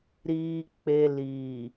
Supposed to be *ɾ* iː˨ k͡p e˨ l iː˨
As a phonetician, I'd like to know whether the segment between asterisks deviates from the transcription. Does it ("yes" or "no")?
no